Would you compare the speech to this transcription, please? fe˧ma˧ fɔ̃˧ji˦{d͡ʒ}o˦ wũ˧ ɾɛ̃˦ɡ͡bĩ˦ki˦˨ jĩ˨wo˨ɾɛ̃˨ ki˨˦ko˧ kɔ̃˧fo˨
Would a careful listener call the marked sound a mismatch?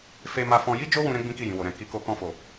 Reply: no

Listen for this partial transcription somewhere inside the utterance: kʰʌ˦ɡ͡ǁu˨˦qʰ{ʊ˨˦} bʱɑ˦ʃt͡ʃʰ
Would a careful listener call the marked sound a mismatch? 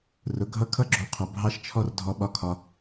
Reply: no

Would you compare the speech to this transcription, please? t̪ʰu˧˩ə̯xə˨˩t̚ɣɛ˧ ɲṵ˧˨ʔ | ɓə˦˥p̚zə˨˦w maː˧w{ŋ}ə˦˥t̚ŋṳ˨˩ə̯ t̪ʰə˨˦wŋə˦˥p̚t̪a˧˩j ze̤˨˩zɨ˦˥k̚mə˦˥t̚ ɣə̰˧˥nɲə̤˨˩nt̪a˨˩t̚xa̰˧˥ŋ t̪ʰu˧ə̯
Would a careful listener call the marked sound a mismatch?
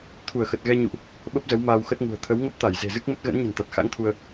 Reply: yes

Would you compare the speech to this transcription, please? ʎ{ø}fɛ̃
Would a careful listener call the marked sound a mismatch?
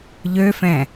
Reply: no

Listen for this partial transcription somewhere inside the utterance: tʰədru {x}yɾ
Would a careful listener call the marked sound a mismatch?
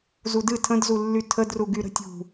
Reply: yes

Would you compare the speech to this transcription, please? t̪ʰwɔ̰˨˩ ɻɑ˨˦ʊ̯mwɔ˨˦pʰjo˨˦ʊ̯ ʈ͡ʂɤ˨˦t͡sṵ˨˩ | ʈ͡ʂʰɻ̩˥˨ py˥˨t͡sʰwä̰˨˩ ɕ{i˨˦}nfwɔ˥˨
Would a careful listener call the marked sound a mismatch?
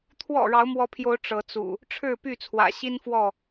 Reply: yes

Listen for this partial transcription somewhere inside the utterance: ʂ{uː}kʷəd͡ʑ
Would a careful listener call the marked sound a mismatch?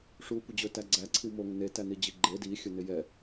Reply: no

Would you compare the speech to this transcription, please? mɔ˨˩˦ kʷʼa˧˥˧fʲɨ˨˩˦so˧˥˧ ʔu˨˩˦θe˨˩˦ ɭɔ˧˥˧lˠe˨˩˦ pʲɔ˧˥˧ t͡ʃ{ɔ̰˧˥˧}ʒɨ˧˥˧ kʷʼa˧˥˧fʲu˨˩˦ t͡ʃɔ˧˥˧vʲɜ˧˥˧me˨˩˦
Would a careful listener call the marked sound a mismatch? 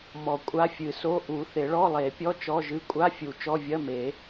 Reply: yes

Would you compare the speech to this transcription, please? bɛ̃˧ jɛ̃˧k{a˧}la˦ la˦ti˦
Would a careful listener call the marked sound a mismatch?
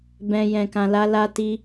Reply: yes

